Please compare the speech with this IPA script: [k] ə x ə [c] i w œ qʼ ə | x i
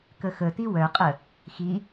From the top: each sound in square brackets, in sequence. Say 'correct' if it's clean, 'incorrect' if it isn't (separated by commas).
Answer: correct, incorrect